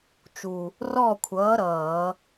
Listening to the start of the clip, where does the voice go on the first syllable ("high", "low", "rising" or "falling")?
low